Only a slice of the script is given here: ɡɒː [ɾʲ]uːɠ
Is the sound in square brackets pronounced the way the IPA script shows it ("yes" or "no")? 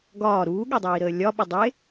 no